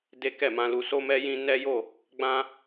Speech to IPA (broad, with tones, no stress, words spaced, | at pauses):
de˦kɛ˦˨mã˧lu˧ so˧mɛ˧ jĩ˧ nɛ˦jo˦˨ | ɡ͡bã˧